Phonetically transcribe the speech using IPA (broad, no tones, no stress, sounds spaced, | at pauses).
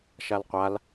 ʃ a l qʷ a l